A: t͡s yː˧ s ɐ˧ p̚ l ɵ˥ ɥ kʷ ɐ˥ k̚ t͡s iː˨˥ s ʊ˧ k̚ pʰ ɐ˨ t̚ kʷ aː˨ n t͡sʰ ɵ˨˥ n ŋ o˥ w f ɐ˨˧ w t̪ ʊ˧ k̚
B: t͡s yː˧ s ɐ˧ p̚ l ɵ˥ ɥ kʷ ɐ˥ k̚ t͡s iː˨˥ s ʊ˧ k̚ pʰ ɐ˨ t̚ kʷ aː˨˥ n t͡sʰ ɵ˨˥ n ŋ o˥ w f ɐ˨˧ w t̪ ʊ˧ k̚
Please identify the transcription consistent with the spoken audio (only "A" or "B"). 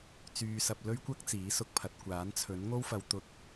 B